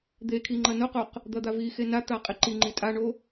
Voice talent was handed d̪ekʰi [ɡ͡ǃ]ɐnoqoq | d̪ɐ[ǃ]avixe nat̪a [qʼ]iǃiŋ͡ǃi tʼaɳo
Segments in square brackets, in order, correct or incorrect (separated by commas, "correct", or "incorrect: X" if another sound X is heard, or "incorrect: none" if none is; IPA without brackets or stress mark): incorrect: ŋ͡ǃ, incorrect: d̪, correct